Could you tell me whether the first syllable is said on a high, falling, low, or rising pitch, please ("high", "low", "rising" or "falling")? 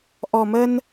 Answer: low